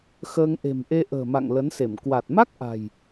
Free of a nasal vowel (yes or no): yes